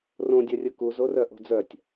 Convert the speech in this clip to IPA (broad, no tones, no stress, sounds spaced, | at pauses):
r õ dʲ œ rʲ ɯ k u z o r œ ʔ o̤ d͡z œ tʲ